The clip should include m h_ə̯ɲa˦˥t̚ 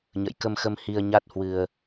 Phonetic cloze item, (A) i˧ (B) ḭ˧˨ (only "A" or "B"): A